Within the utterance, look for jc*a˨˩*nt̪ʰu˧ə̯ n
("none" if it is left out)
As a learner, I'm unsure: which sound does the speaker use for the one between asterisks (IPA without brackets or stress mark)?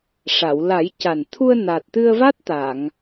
a˨˩